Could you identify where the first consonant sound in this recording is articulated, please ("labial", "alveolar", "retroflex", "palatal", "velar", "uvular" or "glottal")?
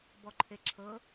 labial